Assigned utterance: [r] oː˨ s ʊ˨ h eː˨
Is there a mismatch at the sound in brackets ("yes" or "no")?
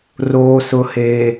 no